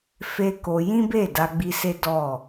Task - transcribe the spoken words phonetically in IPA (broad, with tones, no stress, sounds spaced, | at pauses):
f e˦ k o˧ j ĩ˦ b e˦˨ d a˧ ɡ͡b i˧ s e˦ d ɔ˦˨